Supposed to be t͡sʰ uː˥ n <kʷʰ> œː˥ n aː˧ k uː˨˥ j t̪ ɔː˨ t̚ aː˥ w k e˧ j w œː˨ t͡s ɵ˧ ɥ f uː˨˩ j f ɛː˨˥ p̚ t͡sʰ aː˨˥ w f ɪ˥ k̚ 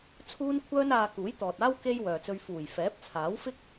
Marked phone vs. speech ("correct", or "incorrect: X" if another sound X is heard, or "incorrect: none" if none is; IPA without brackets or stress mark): correct